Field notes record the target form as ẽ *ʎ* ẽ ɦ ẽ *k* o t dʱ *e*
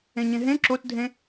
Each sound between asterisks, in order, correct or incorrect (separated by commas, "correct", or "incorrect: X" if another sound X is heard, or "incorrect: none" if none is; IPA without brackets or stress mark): incorrect: ɲ, incorrect: ǁ, incorrect: ẽ